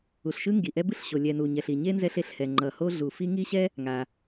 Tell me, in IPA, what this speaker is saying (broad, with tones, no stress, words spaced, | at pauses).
u˩ɬʃɯ˥ŋɡi˩ʔɛ˥ bɯ˥ɬɕo˩ lʲɛ˩nu˩ ɲɛ˩ɬi˩ɲe˥ nzɛ˥ɬe˥ɬhɛ˩ ŋ͡ǃʌ˩ho˥ɮu˩ fi˥ ŋi˥ ɕɛ˥ | ŋa˩